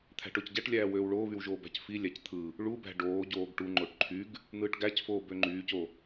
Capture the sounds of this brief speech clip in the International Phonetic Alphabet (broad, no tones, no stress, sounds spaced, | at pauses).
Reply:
t̪ʰ æ̤ ʈ o c ɟ æ ʈ lʲ æː w øː w ɭ oː β y w ʒ oː b æ̤ c f i lʲ æ c t̪ʰ ɯ | ɭ u b æ̤ ɖ oː ɟ oː ɡ ʈ u ŋ͡ǃ o ʈ ǃʰ y ɡ | n̪ ɯː ʈ ɡ æ c f oː b ø ŋ͡ǃ yː c o